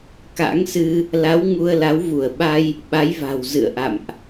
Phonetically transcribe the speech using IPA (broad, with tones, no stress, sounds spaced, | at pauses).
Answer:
k a̰˧˥ ŋ s ɨ˧ | l a˨˦ w ŋ u˧ ə̯ l a˨˦ w v u˧˩ ə̯ ɓ a˧ j | ɓ a˨˦ j v a̤˨˩ w z ɨ̰˧˨ ə̯ ʔ a̰˧˨ m ʔ